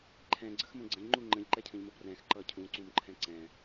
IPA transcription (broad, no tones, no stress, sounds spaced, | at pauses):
ǃʰ ɛ̃ ɡ͡ǀ ə x m ə̃ ɡ͡ǀ ə̃ ʎ ŋ͡ǃ u ŋ͡ǃ ə̃ ʎ ǃ ɛ cʰ ə̃ ʎ m ə b r ɛ̃ x ǃ ʌ cʰ ũ ǀ ũ m ǃʰ ɛ̃ ǀ ɛ̃